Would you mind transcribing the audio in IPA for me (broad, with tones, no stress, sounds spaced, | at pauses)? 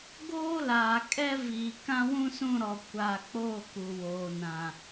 ɡ oː˦ l aː˨ kʼ ɛ˦ v iː˨ k ã˦ w ũ˦ s ũ˦˨ ɾ ɔ˨ kʷ a˨ k͡p o˦˨ k u˨ w oː˨ n ã˨